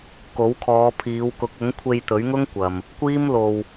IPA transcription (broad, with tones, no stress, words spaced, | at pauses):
ko˨˥wkʰɔː˨˧pʰiː˨˧w kʊ˨˥k̚ʊ˨˥ŋkʷʰe˧j t̪ɵ˨˥ɥ ŋʊ˥ŋkʷɐ˨m | kʷiː˥mlo˧w